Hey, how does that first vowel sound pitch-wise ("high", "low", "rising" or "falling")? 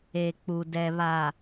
low